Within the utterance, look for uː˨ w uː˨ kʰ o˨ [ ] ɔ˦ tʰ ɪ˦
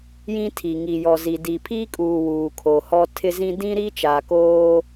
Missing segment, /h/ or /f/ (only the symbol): h